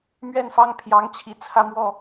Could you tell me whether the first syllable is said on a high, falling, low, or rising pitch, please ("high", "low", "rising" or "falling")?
falling